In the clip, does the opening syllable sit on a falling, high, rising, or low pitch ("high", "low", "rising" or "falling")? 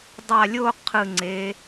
low